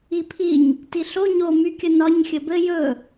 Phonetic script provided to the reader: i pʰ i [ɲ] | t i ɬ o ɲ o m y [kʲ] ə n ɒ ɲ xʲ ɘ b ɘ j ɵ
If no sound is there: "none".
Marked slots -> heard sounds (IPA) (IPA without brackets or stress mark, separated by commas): ɲ, kʲ